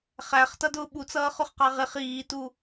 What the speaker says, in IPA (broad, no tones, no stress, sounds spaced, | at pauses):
χ æ χ t ʌ d ʊː ɓ u t͡s ʌː χ ʊ χ q ɑ ʁ ɪ χ iː t u